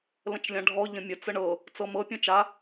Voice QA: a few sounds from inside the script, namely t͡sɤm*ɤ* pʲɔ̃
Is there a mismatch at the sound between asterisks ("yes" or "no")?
no